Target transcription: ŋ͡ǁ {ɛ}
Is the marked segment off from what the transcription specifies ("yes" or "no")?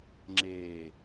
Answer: yes